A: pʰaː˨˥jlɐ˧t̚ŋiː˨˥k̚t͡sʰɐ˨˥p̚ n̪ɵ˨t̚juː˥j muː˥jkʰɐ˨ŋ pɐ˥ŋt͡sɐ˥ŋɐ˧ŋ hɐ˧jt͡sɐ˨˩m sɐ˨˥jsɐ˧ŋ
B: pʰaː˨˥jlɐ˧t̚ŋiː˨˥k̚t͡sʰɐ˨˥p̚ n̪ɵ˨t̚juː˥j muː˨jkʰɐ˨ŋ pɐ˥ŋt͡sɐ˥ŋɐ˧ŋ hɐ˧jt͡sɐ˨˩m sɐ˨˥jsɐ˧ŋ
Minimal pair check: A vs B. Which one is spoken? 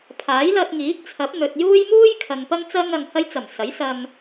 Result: A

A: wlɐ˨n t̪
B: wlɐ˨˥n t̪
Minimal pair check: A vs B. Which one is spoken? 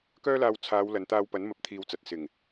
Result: A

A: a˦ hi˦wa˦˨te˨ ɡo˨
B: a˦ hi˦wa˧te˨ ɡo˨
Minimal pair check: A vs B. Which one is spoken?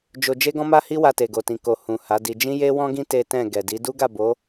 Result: B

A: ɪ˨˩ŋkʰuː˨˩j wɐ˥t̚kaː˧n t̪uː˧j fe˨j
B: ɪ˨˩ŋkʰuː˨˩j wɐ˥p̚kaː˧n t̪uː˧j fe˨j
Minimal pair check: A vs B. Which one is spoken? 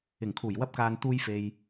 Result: B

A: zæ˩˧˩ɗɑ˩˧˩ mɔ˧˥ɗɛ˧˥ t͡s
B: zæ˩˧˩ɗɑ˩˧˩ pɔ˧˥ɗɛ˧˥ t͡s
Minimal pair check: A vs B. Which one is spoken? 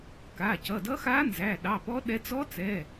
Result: B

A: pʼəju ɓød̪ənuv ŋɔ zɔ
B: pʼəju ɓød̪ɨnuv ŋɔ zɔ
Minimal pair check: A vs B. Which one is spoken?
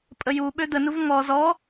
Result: A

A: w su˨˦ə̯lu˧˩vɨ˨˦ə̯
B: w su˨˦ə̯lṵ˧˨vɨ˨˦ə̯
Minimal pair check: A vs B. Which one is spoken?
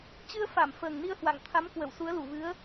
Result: A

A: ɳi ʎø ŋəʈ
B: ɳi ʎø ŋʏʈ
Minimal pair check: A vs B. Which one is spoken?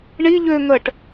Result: A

